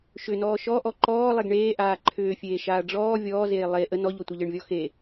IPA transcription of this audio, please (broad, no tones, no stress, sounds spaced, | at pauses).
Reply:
ʃ ʏ n ɔː ʃ ɔ ʔ ɔ ǃ ɔː lˠ e ɡ ɳ eː ʔ aː ǃʰ ʏː fʲ eː ʃ aː ɖ͡ʐ ɔː vʲ ɔː z eː lˠ e ʔ ə n ɔ ʎ ɔ tʷ a ʎ ə ɳ vʲ ɔ x e